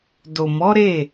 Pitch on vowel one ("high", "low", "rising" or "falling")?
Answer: low